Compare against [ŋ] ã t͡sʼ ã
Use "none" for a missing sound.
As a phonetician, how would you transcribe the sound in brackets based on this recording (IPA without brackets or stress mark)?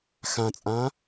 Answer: x